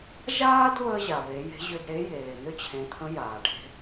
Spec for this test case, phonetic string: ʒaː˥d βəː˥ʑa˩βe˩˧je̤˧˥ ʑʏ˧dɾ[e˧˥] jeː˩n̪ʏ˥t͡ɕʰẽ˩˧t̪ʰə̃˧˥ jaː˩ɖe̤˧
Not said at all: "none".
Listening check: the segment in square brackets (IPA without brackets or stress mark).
e˧˥